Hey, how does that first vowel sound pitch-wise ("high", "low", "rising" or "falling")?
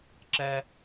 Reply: high